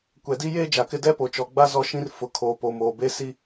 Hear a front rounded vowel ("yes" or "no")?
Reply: no